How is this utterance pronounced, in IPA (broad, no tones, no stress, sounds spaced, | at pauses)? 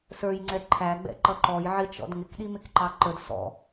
s ə˞ j ŋ͡ǀ ɛ ǃʰ æ ɡ͡b ɛ̰ ǃ ʌ ǃ ɔ j ʕ ɪ t͡ʃ ɔ̰ d ŋ ɪ k ɗ i m ɪ k ǃ ɑ ǃ ə d s ɔ̰